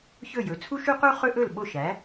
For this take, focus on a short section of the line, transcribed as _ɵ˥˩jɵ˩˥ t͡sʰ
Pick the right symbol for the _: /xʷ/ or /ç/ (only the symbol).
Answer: ç